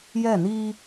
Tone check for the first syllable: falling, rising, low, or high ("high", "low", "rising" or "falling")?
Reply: falling